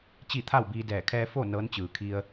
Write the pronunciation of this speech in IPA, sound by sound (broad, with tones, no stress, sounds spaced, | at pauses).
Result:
t͡ɕ i˥˨ t̪ʰ a˥˨ w b iː˧ d ɛː˧˩ kʰ ɛː˧ f o˥˨ n ɤː˧˥ n t͡ɕ ɯː˩ kʰ i˧ ə̯